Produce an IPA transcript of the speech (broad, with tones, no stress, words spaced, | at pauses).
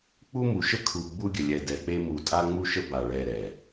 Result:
k͡pu˦ mu˨ʃə˦kʰu˨ ɡ͡bu˦ɡʲə˨lʲɛ˨ dɛ˨k͡pe˦ mu˨tʼa˦ ŋ͡mu˦ʃə˦ba˨ ɭɛ˦˨ɾɛ˨